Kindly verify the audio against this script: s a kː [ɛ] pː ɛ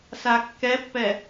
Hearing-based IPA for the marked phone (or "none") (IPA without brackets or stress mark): ɛ